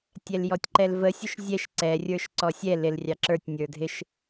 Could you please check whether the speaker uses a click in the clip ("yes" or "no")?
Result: yes